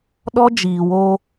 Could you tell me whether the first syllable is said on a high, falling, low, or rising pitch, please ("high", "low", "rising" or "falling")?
high